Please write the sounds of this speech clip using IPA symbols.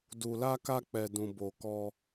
d u˨ l a˧ k a˧ k͡p ɛ˨ d ũ˨ b o˨ k ɔ˧

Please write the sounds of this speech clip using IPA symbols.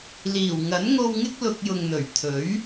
l iː˨˩ w ŋ ɐ˨˥ n ŋ o˧ w ŋ ɪ˥ k̚ l ʊ˧ k̚ j ʊ˨ ŋ n̪ ɵ˨˩ ɥ t̪ʰ ɵ˨˥ ɥ

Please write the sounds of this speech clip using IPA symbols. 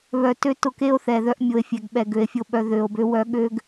β œ˨ t ø˦ t ʊ˨ k e˦ o̯ θ ɛ˨ ð œ˦ ʔ mʲ o˨ e̯ fʲ ɛ˨ ɡ ɓ ɛ˨ ɡ ø˨ e̯ fʲ o˨ ɓ œ˨ ð ø˨ o̯ b ø˦ w œ˦ ɠ ø˦ ɡ

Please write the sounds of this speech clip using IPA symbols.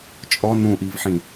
t͡ʃʼ ɔ n ũ ʔ i v ħ ĩ

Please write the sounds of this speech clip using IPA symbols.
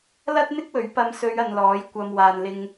l ɐ˥ t̚ n̪ ɪ˥ k̚ w ɵ˨˥ ɥ p ɐ˨˧ m s ɵ˨˧ ɥ ɐ˧ n l ɔː˨˥ j kʷ ɐ˨ m w aː˨ n l ɪ˧ ŋ

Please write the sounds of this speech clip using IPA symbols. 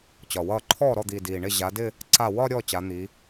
t͡ɕ ɒ˨˩ w ʌː˥˩ ǃʰ ɔː˥˩ ɾ ɔ˥˩ d̪ iː˨˩ d iː˨˩ ɳ ɪ˥˩ ʑ a˨˦ d ɪ˥˧ | ǀ a˥˩ w ɒ˥˧ ɾʲ ɔː˥˩ t͡ɕ a˨˦ n̪ i˨˦

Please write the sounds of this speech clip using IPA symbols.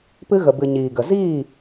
p ɨ˧ ɣ ə˨ b ɨ˨ ɲ iː˨ ɡ ə˨ z iː˦˨

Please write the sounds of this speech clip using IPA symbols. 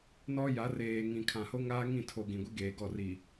n ɔ˦ j a˨˦ r eː˨ ŋ ĩ˨ kʰ ã˨ h o˦ ŋ aː˦ ŋ ĩ˦˨ tʰ o˨ ɡ ĩ˨ ɡʷ i˦ ɡ eː˨ ɡ ɔ˦˨ r i˨

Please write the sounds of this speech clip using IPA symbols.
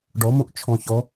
ɖ ɔ m õ ʔ t͡ʃʰ ɔ̃ ç ɔ

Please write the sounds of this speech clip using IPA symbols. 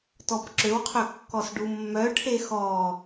t ɔ b ǁ ø w qʰ ø kː ɔ s ɖ u mː œ ʈʰ e x ɔ

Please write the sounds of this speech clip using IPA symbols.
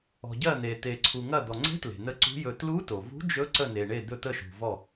ɔ̤˩ ɟ ɜ˧˩ n̪ e˩ t̪ e˩ ǀʰ u˩ ŋ ɐ˧˩ d̪ ɔ˩ ŋ͡ǀ e̤˧˥ t l e̤˩ n ə˧˥ ǀ ṳ˧˥ j ɵ˧˩ t l u˧˥ t o˩ v ṳ˧˥ d͡ʒ ɵ˧˥ ǀ ə˧˩ n e˩ ɳ e˧˩ d̪ ɵ˧˩ t̪ ə˧˩ ʃ ṳ˩ v ɔ˧˩

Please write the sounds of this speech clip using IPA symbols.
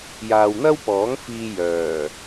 j aː˨ w n̪ ɐ˥ w p ɔː˨˥ ŋ f iː˧ j œː˨˩

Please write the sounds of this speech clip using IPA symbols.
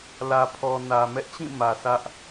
l ä˨ pʰ ɔ˨ n ä˨ m ɛ˦ ʔ t͡ɕ ĩ˦˨ m ä˨ s ä˦ ʔ

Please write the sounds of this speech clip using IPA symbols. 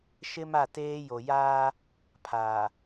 ʃ ɪ˦ m a˦˨ t eː˦ j o˨ j aː˦ | pʰ aː˨

